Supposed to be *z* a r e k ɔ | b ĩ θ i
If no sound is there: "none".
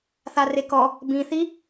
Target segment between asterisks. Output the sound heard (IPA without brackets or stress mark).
θ